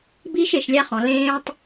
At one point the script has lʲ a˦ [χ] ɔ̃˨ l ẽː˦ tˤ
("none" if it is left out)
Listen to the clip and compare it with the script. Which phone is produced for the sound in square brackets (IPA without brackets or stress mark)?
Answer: χ